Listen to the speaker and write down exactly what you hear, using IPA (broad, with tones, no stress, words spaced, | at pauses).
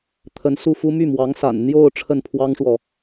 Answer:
t̪ʰə˧˥n su˥˩fu˥ my˥˩mwɑ˧˥ŋsa̰˨˩n n̪jo˥˧ʊ̯ ʈ͡ʂʰə˥˩npʰwɑ˥ŋʂwɔ˨